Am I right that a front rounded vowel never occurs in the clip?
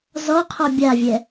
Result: yes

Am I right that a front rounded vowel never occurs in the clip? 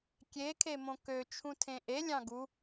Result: no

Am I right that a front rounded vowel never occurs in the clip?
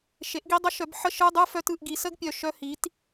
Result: no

